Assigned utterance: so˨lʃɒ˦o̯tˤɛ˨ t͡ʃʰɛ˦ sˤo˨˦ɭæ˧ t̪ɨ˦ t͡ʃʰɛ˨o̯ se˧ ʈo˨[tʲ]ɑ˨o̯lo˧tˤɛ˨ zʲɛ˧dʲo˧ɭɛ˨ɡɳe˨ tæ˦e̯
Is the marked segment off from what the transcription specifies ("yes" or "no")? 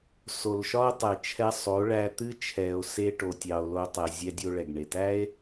no